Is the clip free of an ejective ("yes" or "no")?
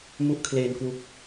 yes